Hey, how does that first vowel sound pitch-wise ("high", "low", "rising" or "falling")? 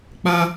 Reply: high